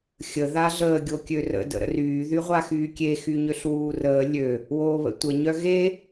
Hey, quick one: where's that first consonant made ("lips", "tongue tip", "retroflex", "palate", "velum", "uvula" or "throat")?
velum